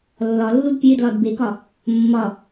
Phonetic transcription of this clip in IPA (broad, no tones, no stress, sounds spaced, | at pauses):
lː ɒ lː u d pʲ e d l ɒ d b e k ɒ | mː ɒ